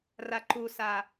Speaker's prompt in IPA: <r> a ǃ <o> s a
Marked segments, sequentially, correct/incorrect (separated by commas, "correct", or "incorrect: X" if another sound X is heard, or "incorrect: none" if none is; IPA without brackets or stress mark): correct, incorrect: u